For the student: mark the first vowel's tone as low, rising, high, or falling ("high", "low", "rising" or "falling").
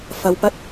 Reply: low